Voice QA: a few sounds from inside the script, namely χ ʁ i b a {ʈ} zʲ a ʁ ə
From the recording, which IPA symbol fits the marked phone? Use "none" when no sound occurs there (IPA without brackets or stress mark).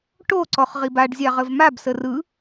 ɖ